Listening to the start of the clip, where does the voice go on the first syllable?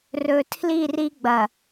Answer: low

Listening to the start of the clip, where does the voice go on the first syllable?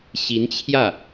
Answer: rising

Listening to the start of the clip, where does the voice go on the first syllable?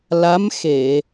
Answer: rising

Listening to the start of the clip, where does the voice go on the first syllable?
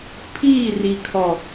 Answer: falling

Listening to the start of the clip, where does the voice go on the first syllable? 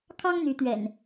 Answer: high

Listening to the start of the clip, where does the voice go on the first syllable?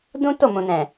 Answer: high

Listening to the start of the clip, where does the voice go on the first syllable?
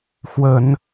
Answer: low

